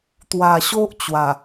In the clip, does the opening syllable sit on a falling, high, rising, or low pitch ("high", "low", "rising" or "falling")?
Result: low